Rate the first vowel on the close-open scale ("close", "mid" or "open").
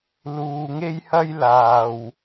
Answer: close